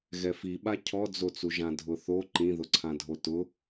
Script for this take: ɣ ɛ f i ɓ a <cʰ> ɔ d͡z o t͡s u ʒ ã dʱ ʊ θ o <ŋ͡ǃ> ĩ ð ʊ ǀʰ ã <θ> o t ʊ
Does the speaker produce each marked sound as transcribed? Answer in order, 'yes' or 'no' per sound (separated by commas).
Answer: yes, no, no